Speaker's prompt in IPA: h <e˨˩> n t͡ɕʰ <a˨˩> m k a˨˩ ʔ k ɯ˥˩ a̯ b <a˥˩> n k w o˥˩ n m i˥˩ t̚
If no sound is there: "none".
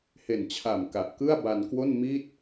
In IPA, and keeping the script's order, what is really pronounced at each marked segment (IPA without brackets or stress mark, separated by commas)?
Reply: e˨˩, a˨˩, a˧